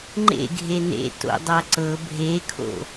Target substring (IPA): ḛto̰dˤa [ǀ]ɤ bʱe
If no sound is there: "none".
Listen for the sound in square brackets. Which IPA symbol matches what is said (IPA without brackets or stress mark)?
ǀ